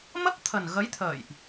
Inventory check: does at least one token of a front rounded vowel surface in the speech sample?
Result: no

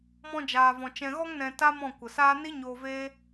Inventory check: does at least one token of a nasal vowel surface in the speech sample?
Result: yes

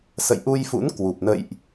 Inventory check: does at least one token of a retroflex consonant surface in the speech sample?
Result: no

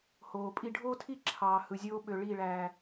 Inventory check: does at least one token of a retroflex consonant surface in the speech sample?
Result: yes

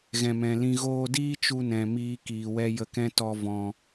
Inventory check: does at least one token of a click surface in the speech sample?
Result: no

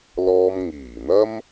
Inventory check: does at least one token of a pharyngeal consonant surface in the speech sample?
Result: no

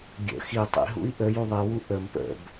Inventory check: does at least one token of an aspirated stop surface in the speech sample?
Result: no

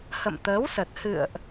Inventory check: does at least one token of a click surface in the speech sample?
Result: no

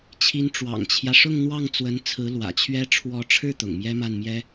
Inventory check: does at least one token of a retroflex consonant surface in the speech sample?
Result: yes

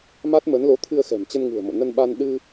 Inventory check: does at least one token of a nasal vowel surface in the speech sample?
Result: no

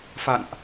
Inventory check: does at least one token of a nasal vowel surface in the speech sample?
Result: no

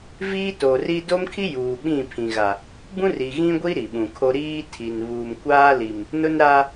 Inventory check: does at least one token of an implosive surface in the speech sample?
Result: yes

